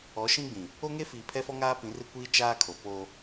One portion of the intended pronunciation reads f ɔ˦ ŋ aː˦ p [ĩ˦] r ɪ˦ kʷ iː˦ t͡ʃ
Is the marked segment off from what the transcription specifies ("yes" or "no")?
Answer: yes